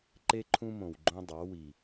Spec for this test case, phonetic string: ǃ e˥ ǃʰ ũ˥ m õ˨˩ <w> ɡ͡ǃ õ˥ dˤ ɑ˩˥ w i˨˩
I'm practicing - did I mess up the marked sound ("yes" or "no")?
no